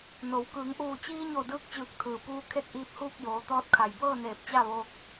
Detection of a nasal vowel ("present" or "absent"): absent